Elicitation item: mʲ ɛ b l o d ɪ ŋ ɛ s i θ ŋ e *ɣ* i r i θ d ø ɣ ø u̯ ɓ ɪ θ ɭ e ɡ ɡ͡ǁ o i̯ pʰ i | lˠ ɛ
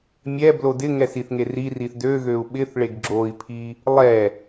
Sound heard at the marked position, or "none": r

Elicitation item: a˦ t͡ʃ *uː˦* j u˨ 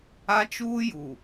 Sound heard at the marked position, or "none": uː˦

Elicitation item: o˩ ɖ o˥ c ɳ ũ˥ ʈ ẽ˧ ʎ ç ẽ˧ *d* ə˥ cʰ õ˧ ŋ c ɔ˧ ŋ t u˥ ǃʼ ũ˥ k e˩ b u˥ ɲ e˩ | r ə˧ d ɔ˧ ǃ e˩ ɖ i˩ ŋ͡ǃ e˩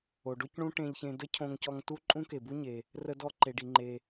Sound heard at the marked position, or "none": d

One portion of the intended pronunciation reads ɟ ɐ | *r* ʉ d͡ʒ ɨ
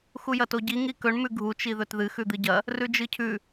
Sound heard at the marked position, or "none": r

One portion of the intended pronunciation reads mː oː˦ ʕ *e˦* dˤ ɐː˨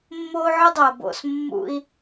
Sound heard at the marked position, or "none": ɨ˦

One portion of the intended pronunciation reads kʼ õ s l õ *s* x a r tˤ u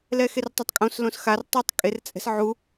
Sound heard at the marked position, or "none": s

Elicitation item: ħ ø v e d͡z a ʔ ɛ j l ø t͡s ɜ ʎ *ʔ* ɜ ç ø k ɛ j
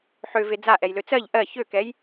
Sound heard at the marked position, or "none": ʔ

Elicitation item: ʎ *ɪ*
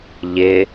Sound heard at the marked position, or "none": ɪ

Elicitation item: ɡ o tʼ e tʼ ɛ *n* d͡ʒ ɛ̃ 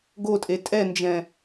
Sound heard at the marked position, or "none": n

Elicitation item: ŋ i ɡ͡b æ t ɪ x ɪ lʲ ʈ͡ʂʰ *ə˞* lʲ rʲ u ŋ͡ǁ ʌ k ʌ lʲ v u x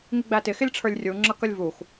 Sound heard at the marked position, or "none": ə˞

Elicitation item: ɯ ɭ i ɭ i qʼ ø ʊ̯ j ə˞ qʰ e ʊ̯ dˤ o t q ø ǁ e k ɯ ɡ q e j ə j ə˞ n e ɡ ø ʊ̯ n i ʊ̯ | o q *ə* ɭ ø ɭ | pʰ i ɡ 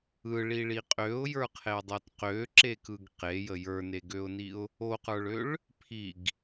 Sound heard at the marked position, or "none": ə˞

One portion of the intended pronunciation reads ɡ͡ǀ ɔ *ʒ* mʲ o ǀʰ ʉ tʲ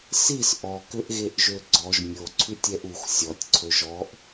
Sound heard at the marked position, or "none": ʒ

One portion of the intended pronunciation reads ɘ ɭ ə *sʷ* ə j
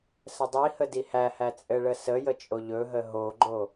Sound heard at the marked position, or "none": s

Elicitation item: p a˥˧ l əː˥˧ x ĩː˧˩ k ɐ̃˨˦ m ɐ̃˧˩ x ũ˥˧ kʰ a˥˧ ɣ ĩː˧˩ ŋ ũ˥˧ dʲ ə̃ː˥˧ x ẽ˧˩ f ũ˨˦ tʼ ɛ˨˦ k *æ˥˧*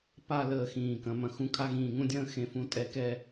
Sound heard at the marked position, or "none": ɛ˥˧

